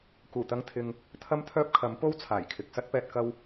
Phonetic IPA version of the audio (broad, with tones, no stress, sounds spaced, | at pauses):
k uː˨˩ t̪ ɐ˧ ŋ t̪ʰ ɪ˨ ŋ | t̪ʰ ɐ˥ m t̪ʰ œː˥ p̚ kʰ ɐ˨˥ m p o˥ w t͡sʰ aː˨˩ j kʰ ɪ˨ k̚ s ɐ˥ t̚ p ɛː˧ t̚ k ɐ˧ w